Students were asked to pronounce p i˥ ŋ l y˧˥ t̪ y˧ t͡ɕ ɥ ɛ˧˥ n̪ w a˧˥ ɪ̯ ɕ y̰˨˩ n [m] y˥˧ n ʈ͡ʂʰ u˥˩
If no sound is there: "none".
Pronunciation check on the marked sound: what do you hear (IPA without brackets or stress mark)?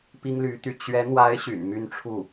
m